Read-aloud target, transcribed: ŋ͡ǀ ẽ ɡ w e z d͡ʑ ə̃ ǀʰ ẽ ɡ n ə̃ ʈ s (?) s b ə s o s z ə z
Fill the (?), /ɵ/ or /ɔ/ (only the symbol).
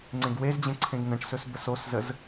ɵ